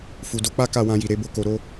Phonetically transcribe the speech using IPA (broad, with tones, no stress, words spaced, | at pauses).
fu˨do˧k͡pa˦ ka˦˨wã˧ji˨ɾe˧ bo˦ko˧ɾo˦